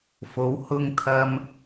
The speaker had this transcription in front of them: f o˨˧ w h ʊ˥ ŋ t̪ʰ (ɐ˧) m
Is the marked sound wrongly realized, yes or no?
yes